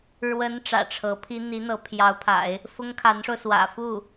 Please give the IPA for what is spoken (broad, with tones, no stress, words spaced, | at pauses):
ɻwə˧˥n ʈ͡ʂä̰˨˩ʈ͡ʂʰɤ˧˥pʰi˥ n̪i˧˥n̪ɤ˧˥pʰjɑ˧˥ʊ̯pʰa̰˨˩˦ɪ̯ | fʊ˥ŋ kʰa˧˥nʂo˧ʊ̯swä̰˨˩ fu˥˩